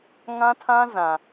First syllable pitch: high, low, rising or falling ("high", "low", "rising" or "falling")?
high